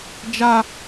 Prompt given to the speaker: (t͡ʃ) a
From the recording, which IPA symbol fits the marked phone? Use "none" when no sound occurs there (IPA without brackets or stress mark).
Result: d͡ʒ